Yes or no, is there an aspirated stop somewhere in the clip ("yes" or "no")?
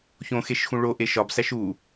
no